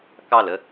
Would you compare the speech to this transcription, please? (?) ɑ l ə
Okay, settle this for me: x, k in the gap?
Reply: k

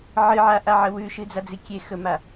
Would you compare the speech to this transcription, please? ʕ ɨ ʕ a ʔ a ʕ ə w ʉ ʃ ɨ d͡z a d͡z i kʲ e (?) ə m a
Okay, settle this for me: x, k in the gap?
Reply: x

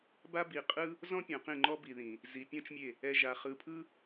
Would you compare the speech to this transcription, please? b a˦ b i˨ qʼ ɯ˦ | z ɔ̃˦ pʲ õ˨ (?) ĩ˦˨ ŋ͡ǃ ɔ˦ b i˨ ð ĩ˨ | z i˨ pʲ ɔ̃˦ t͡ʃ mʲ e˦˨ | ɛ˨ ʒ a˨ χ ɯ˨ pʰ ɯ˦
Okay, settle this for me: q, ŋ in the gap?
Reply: q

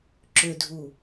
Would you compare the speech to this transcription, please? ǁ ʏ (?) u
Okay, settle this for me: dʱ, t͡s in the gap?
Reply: dʱ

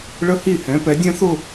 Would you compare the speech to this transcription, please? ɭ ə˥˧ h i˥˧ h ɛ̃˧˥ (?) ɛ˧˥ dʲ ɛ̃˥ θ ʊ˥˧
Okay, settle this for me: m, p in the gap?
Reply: p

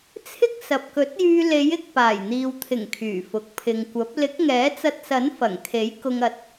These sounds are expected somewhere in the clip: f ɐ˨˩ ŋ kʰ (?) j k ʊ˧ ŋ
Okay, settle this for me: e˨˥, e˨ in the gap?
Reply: e˨˥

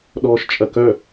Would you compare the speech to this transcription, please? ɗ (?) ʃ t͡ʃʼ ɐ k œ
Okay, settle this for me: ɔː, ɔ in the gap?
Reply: ɔː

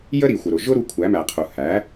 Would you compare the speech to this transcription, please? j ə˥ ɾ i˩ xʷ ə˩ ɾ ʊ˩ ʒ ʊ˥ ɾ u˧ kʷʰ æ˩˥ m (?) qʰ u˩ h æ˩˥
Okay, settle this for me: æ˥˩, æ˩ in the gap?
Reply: æ˩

